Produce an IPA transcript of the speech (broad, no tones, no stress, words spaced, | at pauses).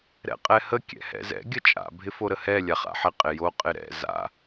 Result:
ɾɛ̰qʼɛhə kʲɛ̰hɛ̰zɛ̰ ɡʲət͡ʃʼa̰ bʱɪfoɾəhɛ lʲaχa̰ħɪ qʼɪjo qʼɪɾɛ̰ za̰